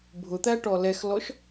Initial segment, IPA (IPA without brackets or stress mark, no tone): bʱ